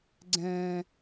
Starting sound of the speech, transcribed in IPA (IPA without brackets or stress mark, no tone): ɡ͡ǀ